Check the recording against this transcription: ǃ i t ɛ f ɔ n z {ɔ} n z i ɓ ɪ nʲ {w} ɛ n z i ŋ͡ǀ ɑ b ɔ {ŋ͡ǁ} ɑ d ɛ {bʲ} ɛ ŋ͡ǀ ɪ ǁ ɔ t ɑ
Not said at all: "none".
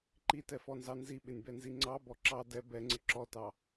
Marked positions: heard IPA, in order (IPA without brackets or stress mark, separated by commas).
ɑ, b, ǁ, b